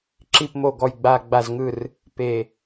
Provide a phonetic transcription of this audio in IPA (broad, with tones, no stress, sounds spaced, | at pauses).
ǁ i˨˩ p m o˨˩ ɡ ɔ˨˩ j ɡ͡b a˨˩ ɡ͡b a˨˩ z ŋ ɯ˨˩ r | p e˨˩